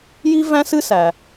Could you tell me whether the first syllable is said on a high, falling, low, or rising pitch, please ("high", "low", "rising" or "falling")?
high